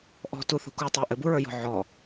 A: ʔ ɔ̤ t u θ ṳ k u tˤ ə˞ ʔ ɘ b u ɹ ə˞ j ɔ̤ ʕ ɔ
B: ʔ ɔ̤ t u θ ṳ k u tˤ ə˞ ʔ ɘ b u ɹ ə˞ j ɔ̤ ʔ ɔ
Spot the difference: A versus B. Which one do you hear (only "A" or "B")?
A